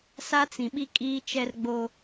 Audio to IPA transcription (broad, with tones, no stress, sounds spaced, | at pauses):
s a˦ t͡s ĩ˨ ɓ i˦ kʼ iː˦ t͡ʃ ɛ˦ r ɡ͡b o˦